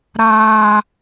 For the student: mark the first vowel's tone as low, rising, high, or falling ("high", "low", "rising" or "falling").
high